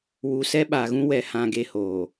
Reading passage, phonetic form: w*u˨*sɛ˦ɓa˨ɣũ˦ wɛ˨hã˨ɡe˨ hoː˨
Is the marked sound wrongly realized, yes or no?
no